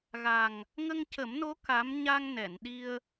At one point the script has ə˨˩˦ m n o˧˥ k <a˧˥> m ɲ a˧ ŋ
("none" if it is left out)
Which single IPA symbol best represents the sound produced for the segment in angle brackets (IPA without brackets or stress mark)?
a˧˥